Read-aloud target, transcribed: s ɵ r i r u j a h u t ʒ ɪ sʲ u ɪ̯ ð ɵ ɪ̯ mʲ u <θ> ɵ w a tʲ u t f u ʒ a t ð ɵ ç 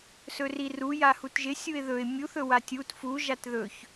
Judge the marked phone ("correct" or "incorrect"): correct